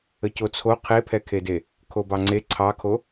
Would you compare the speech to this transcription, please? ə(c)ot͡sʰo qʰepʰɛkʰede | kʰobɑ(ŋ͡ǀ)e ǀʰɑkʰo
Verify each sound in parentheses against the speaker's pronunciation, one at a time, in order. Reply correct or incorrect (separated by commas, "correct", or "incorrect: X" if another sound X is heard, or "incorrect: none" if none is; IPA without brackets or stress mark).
correct, correct